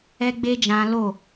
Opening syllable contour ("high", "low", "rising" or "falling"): high